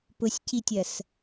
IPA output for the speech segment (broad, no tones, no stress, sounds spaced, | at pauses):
p ʊ sʲ c i tʲ ɐ s